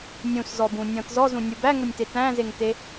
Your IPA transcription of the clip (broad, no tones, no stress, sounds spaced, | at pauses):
nʲ ũ s z ɔ b ũ nʲ ɔ̃ t z ɔ z ũ nʲ u b æ ŋ ʊ nʲ t e t æ̃ z e ŋ t e